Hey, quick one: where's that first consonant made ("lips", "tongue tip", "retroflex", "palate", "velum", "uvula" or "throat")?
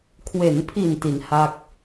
velum